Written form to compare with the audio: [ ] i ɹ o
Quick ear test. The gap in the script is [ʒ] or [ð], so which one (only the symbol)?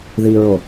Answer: ð